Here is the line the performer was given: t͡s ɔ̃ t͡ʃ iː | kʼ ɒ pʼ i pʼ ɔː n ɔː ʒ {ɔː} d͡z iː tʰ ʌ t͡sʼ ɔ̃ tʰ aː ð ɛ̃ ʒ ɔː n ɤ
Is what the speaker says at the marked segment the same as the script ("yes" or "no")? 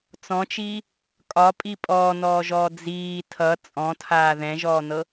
yes